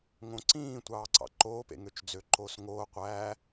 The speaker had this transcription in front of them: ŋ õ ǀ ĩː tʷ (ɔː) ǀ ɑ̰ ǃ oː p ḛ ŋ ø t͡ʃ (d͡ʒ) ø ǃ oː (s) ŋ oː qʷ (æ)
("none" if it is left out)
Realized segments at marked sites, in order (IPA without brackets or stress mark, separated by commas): ɑː, d͡z, s, æː